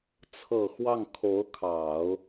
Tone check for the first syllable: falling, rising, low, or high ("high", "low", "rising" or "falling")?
low